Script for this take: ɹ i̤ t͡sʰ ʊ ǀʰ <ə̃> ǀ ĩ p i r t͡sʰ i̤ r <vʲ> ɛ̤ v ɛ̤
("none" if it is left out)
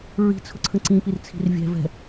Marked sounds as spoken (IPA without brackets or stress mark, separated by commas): ə̃, vʲ